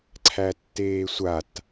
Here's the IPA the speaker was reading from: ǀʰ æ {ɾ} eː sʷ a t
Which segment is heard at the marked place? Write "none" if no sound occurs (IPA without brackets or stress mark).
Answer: tː